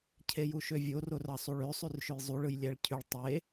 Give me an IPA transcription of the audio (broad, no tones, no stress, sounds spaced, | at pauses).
cʰ e j u ʃ ø vʲ o r o r ɑ sˤ u ɭ ø sˤ y r ʃ ø j zˤ u ɭ ɯ j lʲ æ ɭ cʰ y ɭ tˤ e